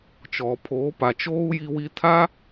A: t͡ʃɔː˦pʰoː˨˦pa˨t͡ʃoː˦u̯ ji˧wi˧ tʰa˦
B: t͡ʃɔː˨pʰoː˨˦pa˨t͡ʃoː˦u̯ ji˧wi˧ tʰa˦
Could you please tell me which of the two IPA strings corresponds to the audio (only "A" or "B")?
B